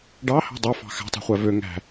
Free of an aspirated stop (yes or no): yes